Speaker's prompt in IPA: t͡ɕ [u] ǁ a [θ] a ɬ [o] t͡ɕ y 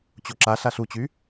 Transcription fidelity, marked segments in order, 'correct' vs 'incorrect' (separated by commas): incorrect, incorrect, incorrect